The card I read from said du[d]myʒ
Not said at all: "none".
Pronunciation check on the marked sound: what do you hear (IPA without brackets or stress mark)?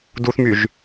θ